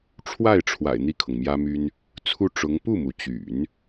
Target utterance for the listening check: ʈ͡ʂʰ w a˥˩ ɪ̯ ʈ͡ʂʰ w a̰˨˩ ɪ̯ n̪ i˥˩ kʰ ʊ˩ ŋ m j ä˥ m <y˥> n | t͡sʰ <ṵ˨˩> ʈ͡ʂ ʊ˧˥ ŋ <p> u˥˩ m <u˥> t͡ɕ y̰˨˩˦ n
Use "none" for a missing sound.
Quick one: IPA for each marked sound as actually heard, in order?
y˥, u˥˩, p, u˩

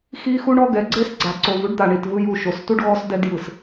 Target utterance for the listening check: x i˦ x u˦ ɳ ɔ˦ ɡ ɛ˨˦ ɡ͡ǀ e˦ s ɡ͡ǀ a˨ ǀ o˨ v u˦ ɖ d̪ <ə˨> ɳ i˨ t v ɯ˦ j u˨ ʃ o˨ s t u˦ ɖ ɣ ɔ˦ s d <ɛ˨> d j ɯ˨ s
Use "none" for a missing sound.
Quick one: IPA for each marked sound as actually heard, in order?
a˨, ɛ˦

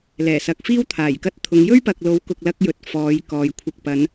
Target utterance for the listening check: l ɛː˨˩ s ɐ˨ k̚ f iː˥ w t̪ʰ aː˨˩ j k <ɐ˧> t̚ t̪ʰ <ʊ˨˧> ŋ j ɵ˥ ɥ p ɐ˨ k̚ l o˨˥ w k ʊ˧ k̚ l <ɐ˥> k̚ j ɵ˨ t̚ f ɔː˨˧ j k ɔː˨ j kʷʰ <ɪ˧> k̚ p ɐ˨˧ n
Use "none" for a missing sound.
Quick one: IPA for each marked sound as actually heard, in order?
ɐ˧, ʊ˨˧, ɐ˥, ɪ˧

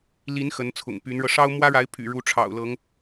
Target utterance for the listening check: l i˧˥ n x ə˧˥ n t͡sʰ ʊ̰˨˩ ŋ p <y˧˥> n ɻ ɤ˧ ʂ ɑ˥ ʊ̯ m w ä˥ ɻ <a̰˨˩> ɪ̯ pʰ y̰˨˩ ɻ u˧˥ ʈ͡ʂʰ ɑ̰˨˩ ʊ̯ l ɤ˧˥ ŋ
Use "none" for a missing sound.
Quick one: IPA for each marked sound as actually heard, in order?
y˧˥, a˧˥

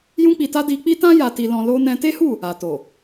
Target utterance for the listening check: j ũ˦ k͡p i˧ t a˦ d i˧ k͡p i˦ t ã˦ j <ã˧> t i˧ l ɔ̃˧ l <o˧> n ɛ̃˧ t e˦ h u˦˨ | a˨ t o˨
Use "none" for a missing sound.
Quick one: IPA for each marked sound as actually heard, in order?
a˧, o˦

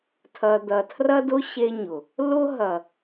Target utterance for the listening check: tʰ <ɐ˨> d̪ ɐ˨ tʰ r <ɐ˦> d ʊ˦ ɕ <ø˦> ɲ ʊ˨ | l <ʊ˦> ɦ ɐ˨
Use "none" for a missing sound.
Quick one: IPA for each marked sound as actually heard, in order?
ɐ˨, ɐ˦, e˦, ʊ˦

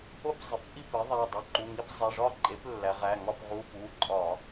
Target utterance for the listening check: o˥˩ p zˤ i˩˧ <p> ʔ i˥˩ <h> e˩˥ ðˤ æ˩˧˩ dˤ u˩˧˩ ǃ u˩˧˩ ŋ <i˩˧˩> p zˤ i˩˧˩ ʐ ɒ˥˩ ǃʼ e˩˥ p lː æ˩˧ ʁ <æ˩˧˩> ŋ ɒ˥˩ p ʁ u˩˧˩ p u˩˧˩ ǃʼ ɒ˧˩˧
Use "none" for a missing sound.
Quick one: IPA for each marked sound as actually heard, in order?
p, p, i˧˥˧, æ˩˧˩

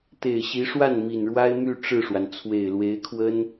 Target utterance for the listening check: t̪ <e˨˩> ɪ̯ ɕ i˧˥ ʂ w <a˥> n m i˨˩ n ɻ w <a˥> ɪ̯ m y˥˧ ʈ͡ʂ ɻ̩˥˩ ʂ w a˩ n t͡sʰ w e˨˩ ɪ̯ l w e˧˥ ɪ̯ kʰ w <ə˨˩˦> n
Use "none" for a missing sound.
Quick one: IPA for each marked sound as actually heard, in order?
e˨˩, a˥˩, a˥, ə˥

